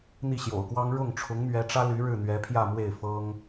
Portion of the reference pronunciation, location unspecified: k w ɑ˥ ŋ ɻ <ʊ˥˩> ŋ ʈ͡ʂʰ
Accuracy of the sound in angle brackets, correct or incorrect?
correct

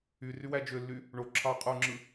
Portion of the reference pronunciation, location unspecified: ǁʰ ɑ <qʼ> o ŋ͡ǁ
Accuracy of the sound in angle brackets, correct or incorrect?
correct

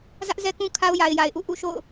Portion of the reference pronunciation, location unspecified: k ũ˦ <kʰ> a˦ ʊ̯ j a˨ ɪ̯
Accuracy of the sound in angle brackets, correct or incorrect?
correct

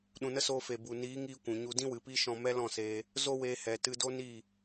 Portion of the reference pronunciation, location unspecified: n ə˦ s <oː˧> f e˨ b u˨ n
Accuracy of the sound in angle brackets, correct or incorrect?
correct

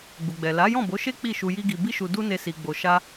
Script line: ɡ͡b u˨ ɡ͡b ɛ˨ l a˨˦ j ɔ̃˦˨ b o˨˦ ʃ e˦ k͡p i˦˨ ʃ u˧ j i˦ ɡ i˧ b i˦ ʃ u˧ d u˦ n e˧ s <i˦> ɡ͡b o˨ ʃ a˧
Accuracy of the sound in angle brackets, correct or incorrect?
incorrect: i˨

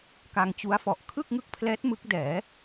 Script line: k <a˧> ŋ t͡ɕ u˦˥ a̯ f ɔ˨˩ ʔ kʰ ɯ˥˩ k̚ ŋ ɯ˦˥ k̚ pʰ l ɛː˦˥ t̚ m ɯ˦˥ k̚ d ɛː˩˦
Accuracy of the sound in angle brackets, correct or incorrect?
correct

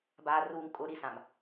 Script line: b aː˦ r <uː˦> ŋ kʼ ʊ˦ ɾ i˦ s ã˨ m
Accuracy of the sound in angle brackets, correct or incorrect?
correct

